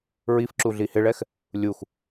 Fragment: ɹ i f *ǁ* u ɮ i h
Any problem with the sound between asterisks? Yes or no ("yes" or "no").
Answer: no